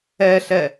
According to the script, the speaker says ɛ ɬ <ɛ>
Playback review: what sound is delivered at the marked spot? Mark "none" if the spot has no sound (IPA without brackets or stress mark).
ɛ